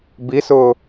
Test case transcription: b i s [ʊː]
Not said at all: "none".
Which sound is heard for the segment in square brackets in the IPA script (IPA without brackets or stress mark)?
ʊː